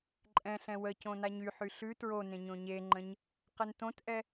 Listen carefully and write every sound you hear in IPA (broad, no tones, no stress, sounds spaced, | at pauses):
ǃʼ ɛ̃ ɬ ɛ̃ w ə c õ n a ɲ y ħ y ɬ ʉ t ɹ o n ẽ ɲ õ ɲ e ŋ͡ǃ ə̃ ɲ | q ə n t õ t ʔ ɛ